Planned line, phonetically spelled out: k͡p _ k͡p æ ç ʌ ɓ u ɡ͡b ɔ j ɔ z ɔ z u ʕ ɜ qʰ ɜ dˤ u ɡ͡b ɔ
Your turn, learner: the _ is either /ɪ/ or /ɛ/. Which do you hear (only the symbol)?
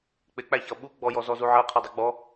ɪ